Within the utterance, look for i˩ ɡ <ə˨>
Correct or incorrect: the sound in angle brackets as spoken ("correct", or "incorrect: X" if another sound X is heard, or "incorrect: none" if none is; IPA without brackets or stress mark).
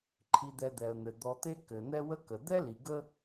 incorrect: ə˦